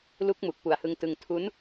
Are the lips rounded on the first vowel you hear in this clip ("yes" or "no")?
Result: yes